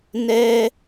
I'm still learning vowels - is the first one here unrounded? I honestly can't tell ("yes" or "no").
yes